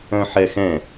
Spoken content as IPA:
œ̃ħɛxɛ̃

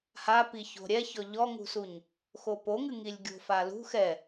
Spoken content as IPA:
ha piço̤ɾʲɛçɔ ʎɔŋṳsuɲ | xopoŋɨ ŋilʲɡʲo̤falṳ xɛ

